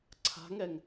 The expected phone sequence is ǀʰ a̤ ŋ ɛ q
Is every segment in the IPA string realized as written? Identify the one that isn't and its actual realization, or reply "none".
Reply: q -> ŋ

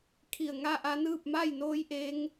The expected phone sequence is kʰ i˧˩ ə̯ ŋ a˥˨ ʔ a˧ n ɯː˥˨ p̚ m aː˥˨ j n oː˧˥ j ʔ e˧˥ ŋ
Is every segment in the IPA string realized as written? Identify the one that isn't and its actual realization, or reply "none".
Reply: aː˥˨ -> a˥˨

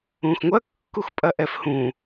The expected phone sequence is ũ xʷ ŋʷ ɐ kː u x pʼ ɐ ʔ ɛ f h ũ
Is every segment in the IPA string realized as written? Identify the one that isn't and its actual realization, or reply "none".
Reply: xʷ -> x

